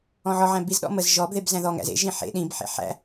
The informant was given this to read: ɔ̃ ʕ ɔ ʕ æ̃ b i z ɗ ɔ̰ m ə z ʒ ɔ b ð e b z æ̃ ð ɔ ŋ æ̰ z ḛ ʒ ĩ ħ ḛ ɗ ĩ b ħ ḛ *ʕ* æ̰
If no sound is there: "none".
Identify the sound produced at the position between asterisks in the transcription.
ħ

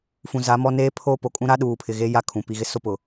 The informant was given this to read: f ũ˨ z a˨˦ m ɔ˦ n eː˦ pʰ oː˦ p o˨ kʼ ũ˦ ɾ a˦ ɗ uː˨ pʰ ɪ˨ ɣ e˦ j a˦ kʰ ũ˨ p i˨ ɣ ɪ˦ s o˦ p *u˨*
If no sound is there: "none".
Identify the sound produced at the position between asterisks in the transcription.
ʊ˨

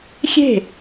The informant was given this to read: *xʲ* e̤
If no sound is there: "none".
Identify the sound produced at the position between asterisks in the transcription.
xʲ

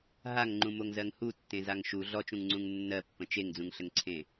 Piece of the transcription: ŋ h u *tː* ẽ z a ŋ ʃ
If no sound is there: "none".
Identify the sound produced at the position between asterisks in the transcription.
tː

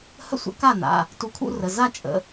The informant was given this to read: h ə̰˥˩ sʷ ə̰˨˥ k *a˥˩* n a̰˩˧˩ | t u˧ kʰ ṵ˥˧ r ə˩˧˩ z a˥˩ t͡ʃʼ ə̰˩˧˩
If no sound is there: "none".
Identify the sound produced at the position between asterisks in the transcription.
a˥˩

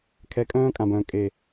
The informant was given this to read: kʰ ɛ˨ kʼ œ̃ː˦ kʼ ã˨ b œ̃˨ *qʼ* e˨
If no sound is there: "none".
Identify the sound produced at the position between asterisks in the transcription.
kʼ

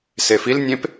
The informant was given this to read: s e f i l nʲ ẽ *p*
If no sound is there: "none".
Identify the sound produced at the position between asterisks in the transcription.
p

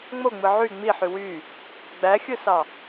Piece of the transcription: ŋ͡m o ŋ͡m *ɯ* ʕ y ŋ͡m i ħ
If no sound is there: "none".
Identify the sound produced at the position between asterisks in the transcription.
ɯ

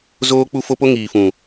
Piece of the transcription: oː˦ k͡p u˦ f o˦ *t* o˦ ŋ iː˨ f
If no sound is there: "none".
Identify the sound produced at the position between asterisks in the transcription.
p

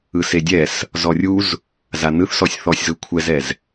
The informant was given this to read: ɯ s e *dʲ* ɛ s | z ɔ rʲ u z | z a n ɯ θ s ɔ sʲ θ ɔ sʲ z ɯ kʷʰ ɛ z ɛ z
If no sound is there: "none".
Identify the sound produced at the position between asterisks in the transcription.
dʲ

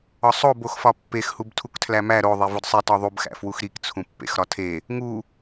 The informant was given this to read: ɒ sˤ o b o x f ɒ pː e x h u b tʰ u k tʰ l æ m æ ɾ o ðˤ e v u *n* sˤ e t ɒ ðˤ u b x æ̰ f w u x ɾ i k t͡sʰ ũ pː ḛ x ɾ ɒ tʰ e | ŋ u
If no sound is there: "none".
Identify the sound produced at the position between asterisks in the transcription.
d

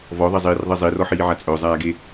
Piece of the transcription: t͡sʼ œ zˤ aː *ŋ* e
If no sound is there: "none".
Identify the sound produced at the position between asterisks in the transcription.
ɡ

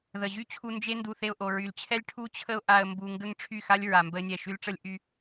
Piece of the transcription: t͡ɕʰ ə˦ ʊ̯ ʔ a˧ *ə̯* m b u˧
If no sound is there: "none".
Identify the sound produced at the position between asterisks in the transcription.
ə̯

